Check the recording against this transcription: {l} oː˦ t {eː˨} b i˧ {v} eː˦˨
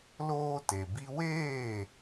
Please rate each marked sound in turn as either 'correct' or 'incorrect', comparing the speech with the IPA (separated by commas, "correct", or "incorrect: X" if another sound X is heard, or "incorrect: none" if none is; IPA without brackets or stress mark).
correct, incorrect: e˨, incorrect: w